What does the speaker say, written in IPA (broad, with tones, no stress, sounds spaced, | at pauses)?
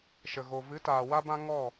ʃ ə˨ ɣ o˨ v ɨ˨˦ t aː˨ w a˦ b ã˦ ŋ ɔ˦˨